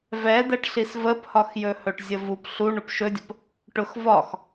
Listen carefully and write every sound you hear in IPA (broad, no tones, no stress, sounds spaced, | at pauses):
v ɛ d̪ ɛ ʈ ɬ i s v ə p h ɒ x j ɵ h ɵ ʈ zʲ ə v u p ɬ u ɳ ʊ p ʃ ɵ dʲ ə p | ʈ ʊ x v ɒ x